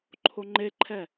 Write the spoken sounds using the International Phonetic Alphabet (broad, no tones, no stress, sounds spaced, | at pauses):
ǃʰ o ŋ͡ǃ e ǃʰ ɛ